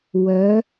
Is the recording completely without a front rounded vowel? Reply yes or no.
no